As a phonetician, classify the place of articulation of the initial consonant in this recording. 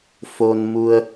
labial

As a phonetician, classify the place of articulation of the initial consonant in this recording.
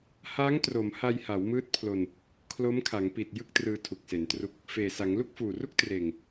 glottal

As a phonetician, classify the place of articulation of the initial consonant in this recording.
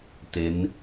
alveolar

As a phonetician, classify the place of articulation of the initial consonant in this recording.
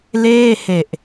alveolar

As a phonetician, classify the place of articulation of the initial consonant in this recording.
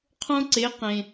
uvular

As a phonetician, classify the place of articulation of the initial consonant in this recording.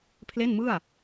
labial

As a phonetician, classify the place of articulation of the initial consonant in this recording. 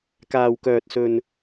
velar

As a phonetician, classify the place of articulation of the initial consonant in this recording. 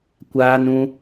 velar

